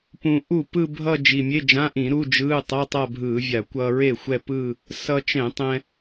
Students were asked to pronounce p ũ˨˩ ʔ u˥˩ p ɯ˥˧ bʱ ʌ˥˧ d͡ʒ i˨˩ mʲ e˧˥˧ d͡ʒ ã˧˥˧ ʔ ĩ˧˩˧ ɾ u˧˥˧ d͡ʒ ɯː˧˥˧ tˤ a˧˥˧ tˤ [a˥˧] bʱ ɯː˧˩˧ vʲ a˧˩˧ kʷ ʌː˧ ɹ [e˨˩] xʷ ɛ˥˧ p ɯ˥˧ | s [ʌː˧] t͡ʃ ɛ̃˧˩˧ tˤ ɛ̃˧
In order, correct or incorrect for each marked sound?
correct, incorrect: e˥˩, incorrect: ʌ˧

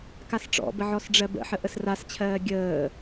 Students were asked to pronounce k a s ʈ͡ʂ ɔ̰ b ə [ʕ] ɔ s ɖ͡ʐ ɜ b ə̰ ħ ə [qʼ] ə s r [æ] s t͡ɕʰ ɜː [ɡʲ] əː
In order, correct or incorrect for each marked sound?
correct, incorrect: ʔ, incorrect: a, correct

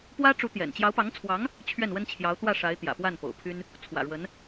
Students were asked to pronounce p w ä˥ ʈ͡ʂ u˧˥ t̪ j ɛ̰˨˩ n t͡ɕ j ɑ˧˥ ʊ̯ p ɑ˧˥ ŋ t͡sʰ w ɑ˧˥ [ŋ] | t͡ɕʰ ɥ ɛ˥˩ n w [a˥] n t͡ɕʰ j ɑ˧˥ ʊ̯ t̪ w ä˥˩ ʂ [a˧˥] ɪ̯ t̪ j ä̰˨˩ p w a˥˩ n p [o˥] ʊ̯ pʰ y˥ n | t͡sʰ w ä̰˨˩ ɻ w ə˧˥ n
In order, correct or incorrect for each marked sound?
correct, incorrect: ə˥, correct, incorrect: o̰˨˩

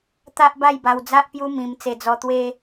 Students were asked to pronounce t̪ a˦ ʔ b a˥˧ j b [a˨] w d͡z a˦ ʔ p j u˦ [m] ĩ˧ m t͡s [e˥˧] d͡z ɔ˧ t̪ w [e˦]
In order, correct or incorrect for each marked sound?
incorrect: a˧, correct, incorrect: e˧, correct

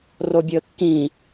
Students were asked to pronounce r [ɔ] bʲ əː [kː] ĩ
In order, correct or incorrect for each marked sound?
incorrect: o, correct

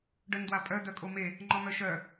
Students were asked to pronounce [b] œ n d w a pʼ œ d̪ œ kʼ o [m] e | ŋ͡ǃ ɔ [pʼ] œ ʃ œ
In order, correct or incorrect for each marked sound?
incorrect: ɖ, correct, incorrect: m

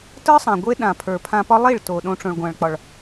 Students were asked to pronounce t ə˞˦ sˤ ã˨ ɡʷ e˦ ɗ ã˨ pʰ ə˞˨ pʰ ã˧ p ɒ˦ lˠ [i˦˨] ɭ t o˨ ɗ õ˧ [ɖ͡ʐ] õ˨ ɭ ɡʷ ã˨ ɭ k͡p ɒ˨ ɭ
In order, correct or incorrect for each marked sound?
correct, incorrect: ʈ͡ʂ

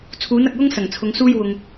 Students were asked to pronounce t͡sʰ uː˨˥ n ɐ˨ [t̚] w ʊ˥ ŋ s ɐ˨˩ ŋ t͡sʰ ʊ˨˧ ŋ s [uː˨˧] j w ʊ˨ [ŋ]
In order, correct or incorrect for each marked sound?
incorrect: k̚, incorrect: uː˥, correct

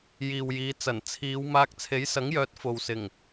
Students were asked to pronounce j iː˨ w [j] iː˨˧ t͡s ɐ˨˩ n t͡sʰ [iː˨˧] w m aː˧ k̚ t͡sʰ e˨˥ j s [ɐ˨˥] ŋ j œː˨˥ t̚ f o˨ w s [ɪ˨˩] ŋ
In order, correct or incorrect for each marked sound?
correct, correct, correct, correct

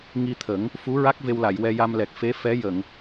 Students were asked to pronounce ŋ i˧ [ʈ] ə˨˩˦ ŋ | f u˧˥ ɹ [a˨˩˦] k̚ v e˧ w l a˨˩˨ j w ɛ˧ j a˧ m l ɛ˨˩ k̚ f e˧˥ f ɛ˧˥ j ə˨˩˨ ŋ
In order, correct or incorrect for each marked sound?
incorrect: t̪ʰ, incorrect: a˦˥

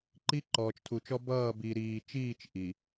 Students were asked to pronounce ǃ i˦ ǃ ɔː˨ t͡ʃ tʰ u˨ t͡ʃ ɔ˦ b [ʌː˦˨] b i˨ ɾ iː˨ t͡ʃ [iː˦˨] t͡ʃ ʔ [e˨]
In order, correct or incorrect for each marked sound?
correct, correct, incorrect: i˨

